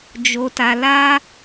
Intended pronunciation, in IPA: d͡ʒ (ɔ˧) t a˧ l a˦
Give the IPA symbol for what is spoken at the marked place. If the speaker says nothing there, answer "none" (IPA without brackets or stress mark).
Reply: o˧